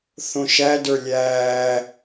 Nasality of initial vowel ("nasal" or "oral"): nasal